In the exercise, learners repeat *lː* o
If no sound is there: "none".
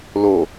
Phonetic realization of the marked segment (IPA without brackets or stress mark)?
l